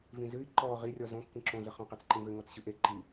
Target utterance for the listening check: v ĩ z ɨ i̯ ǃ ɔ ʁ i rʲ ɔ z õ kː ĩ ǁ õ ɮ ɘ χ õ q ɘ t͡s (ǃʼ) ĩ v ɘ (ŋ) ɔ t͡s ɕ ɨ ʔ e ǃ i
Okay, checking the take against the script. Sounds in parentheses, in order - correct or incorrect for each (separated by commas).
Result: incorrect, correct